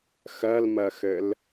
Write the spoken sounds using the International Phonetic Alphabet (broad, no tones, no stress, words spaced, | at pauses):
xɜlmɜxɘl